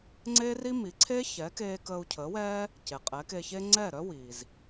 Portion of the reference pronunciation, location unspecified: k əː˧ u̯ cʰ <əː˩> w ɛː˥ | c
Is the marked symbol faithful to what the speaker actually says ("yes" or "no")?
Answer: no